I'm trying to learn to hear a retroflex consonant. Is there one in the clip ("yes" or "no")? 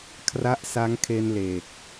no